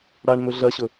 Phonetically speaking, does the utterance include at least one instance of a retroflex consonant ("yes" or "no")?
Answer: yes